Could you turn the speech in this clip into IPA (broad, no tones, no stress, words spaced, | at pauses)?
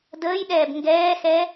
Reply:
dəːjɗɛːb ŋɡɛːxɛ